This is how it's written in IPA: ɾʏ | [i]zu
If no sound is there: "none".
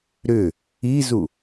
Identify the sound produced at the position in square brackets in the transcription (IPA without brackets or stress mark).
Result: i